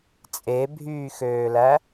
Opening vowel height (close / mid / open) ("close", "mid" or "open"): mid